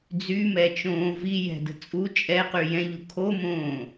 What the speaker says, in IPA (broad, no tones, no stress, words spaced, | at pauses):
d͡zymɛt͡ʃõː vi jɛ̤də̤ t͡sʼu t͡ʃʼɛqy jɛ̃ʎu kʰomõː